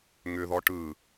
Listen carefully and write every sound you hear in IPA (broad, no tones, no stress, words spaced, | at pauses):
ŋʏðɔ ʈɯ